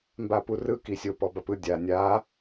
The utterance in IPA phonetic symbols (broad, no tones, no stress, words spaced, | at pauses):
mbapurɯ kisʲo pɔbapɯ dʲa nʲa